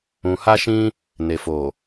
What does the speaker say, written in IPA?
ũ˧ ha˦ʃĩ˦ | ne˨fo˨

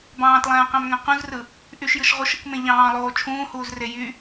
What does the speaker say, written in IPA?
bɑ̃ːtlˠæ̃ːqæ̃mŋæ̃ qũzrɯ | ʔyʃjɯʃ ʁuʃɯkmẽ ʎɑ̃ːlˠoː t͡ʃʰũːhuːzre jy

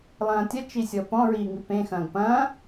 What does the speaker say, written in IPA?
lˠɐ̃ːtʲɐ t͡ʃisʲɔpɔ̃ ɹiːŋipẽ xɐ̃ːɡpɐ̃ː

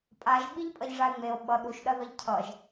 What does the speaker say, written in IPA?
pʼaʒ ɓiʎpʼʌʎʐae̯ŋ͡meo̯ ɓʌ ɗuʃ ɗɐðʌʎcʰʌʒ

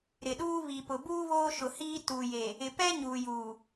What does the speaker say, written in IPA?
ɾɪ˨ɗuː˦ βi˨pʊ˨buː˦ βoː˦ʃʊ˨hiː˦ tu˨je˨ | ɪ˨pɛ˦ ɲuː˨juː˨

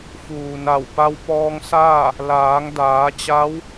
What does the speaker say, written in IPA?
fuː˩na˧˩w pa˧wpɔː˧ŋsaː˥˨ | laː˩˧ŋdaː˩˧t͡ɕa˧˥w

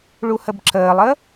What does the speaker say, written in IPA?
ɭuhəbǁəːlˠə

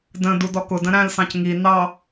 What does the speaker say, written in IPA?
də̃ dudɔkʊdə̃ ɾæ̃lsɑ̃c ŋi nɑ

